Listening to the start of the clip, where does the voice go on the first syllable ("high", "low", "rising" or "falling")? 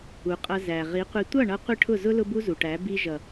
low